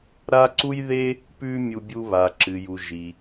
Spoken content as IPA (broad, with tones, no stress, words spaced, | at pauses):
ɾa˥ǀu˥jðe˥ | pʉ˥mʲu˧ bʲu˧ βa˩ǁɨ˩ju˩ ʒi˩